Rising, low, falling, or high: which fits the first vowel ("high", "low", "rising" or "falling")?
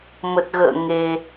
low